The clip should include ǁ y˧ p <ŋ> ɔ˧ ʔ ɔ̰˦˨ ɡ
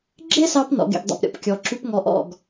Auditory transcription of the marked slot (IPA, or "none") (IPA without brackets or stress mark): ŋ